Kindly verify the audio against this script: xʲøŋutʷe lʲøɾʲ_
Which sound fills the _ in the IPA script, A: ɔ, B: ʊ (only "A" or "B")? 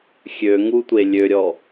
A